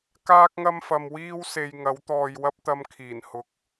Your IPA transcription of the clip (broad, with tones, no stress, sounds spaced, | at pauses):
k aː˥ k̚ ŋ ɐ˥ m f ɐ˧ m w iː˥ w s e˧ j ŋ ɐ˨˥ w t̪ ɔː˧ j w ɐ˥ p̚ t̪ ɐ˧ m kʰ iː˨˩ n h ʊ˨ k̚